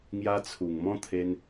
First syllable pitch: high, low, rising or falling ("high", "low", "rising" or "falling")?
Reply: high